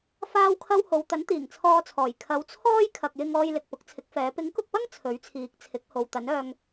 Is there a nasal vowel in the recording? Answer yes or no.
no